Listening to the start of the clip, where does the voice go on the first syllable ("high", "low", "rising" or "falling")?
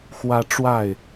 high